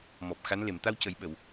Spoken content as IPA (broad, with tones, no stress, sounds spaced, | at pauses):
m ɔ˨˩ p̚ x a˧˥ n l e˨˩˨ m t̪ a˧ w c ə˨˩˦ j ɓ ə˨˩˨ w